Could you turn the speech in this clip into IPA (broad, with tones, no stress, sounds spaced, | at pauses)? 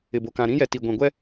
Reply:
ɪ˨ b o˨ k ã˨ ɾ ĩ˦ j ɛ˨ t i˨ ɡʷ ĩ˨ ɡʷ ɛ˦